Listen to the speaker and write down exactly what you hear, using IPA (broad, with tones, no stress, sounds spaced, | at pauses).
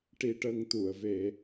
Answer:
ʈ i˧ ʈ ə˧ ŋ t̪ u˨˩˨ ə̯ v e˨˩˦